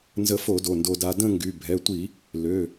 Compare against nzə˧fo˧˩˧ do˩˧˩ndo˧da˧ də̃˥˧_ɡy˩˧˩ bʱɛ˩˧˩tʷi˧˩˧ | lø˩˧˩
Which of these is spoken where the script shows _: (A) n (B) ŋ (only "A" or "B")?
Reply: B